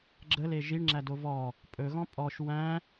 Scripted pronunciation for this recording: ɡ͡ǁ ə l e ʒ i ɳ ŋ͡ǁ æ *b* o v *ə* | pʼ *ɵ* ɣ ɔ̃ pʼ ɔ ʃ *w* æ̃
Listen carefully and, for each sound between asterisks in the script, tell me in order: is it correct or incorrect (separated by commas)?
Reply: incorrect, incorrect, correct, correct